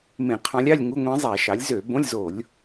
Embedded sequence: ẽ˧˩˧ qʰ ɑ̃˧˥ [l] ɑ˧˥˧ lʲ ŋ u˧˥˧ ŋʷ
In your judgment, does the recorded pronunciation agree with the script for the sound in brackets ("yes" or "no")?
no